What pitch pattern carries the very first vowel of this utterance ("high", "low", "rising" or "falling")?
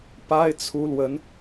high